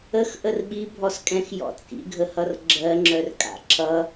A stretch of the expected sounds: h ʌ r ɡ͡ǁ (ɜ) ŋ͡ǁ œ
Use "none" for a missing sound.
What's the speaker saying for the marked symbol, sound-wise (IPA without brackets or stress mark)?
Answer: ɜ